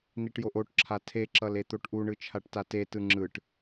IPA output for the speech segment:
n i ʈ j o ʔ o ʈ ǁʰ a tʰ e ǁ ʌ l e t̪ o ʈ ʔ u ɳ ɯ t͡ʃʰ a ʈ t a t e t ɯ ŋ͡ǁ ɯ ʈ

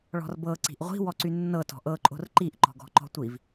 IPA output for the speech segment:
ɭ ɔ̤ r b ɤ ǀ i̤ ʔ ʁʷ i̤ w ɔ ǀ y nː ɤ t ɔ̤ ʔ ɤ ǃʼ o̤ r ǃ i ʔ ǃ ɔ̤ ɡ ɔ̤ ǃ ɔ̤ tʷ i v

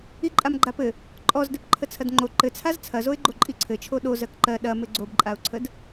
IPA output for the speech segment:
i ǃʼ a m ɡ͡ǃ a p ɘ | ǃʼ ɔ z d ɘ p ǃʰ ə t͡sʰ ɐ d ŋ͡ǃ o ǃ ɘ t͡sʰ a z t͡sʰ ɐ z o ɪ̯ ɡ͡ǃ o ǃʼ i ǀʰ ɘ t͡ʃʰ o ɗ o z ɜ k ǃ ɜ ɗ ɐ m ɘ ɡ͡ǀ o b ǃʼ a ʊ̯ ǀʰ ə d

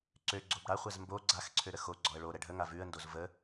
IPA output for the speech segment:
ǀ ø ɡ͡ǀ o b ɽ a χʷ ɛ z m b o ɡ͡ǀ a x ǀʰ ø ɾ ə x o ɡ͡ǀ ɔ ə̯ ɭ o ɾ ɛ ɖʱ ə ŋ a v ʉ ə̯ n d o z v ə

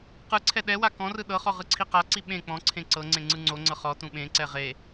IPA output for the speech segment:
q ɯ ǀʰ ɛ ɗ ɛ w a k ɔ̃ r ɯ ɗ ɤ χ ɔ ʁ ɯ ǀʰ i q a ǀ i ɓ ẽ k͡p ɔ̃ ǀʰ ẽ ǀ ɤ ŋ͡ǀ ẽ ŋ͡ǀ ɯ ŋ͡ǀ o ŋ͡ǀ ɤ χ ɔ t ũ ɓ ẽ ǀ ɛ ʁ e

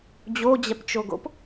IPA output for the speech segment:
d͡ʑ o d͡ʑ ɛ p t͡ʃ o ɡ o̰ p

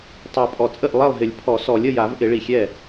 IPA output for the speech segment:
tˤ a˨˩ pʼ ɔ˨˩ t͡sʼ ə˥˩ ʔ lˠ ɛ˥˩ lˠ ɦ ɪ˨˩˦ lʲ pʰ ɔ˨˩˦ s ɔ˨˩˦ lʲ ə˥˩ j a˨˩˦ v ʔ ɪ˨˩˦ ɭ i˨˩ xʲ ɛ˥˩

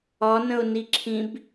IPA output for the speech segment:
ɒ n ə̃ ʊ̯ n i ǁʰ ĩ b

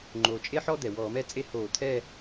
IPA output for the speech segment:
ŋ͡ǃ oː˩ t͡ʃʼ e˥ ħ ɔ˥ d̪ ɛ˩ w ɔː˧˩˧ m ɛ˥ t͡sʼ e˥ h oː˧˩˧ t̪ʰ ɛː˥˧

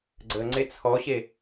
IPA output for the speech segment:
ɡ͡ǀ ə ŋ͡ǀ e t͡sʰ ɔ ɕ e

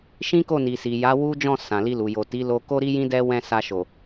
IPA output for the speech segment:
ʃ ĩ˦ k o˦˨ n i˨ s i˨ j a˨˦ w u˦ d͡ʒ ɔ̃˦˨ s ã˨ l i˧ l u˨ j o˨ t i˨˦ l o˧ k o˦ ɾ i˦ j ĩ˦ d ɛ˦ w ɛ̃˦˨ s a˧ ʃ o˨

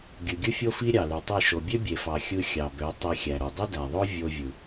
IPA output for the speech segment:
ɡʲ ɯ˨ ɡʲ ɯ˦ fʲ o˦ f i˦ ɾʲ ɑ˨ l y˨ tˤ i˦˨ ʃ o˨ bʲ ø˦ bʲ e˨ f ɑ˨ xʲ ɯ˧ xʲ ɑ˨ b ø˨˦ tˤ i˧ xʲ æ˨ ɾ o˨ dˤ ɯ˦ d æ˨ ðˤ o˦ vʲ o˧ vʲ ɯ˨

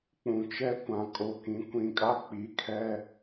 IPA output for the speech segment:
k͡p ũ˨ t͡ʃ ɛ˦ kʷ ã˨ kʼ o˨ k ĩ˨˦ kʷ ĩ˨ kʼ a˦ k͡p i˨˦ kʰ ɛ˦

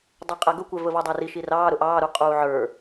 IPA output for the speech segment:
dˤ ɛ qʼ æ ɡ ʊ kʷ ɛ v ə v ɔ dˤ æ r i ʃ i r ɑː ɾ ʊ ʔ ɑː ɾ u qʼ uː ʕ ə˞

